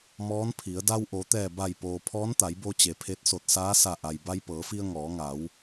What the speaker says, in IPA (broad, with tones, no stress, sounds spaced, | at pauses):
m ɔː˧˥ n pʰ i˩˧ ə̯ d a˧ w ʔ o˩˧ t̪ ɛː˧˩ b a˧˩ j p oː˩ pʰ ɔː˧˥ n t̪ a˩˧ j b o˧ t͡ɕ e˩ pʰ e˧˥ t̚ s o˧˩ t̚ s aː˧˥ s a˧˩ ʔ a˩ j b a˧ j p ɤː˩˧ f i˧ ə̯ ŋ ɔː˩˧ ŋ a˩˧ w